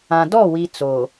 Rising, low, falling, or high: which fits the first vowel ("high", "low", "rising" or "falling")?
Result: low